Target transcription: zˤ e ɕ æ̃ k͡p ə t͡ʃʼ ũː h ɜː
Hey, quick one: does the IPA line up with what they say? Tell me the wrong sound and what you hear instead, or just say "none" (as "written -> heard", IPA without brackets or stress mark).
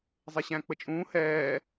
ɜː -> ɛː